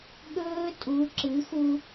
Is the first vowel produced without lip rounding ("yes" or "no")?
no